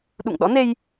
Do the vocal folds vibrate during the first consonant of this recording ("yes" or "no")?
yes